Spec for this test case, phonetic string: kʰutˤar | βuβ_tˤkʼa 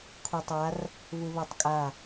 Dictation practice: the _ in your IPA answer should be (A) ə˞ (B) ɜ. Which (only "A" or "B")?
B